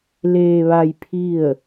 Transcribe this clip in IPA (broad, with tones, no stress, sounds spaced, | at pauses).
l eː˧ ʋ a˧ j pʰ i˥˨ ə̯